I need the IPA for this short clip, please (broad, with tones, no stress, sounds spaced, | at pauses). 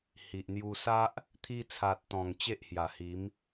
h i˨ ʔ n̪ j u˧ s a˦ ʔ | t̪ʰ i˧ t͡sʰ a˨ t̚ t̪ ɔ̃˨˩ ŋ t͡ɕ e˦ ʔ h j a˨˩ h i˨˦ m